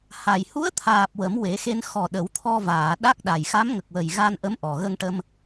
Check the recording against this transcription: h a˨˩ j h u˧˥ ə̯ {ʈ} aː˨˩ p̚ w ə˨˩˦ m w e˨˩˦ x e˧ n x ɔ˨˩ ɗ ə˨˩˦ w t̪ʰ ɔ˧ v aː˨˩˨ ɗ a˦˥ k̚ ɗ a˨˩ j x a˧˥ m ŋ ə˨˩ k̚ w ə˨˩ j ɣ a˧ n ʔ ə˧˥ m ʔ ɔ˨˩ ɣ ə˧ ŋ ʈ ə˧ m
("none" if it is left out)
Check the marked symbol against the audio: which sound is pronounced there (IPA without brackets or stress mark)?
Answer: t̪ʰ